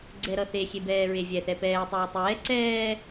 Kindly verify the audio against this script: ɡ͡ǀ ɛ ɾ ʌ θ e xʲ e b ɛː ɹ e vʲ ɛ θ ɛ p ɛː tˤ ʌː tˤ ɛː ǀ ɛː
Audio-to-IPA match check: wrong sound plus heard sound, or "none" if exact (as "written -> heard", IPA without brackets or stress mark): none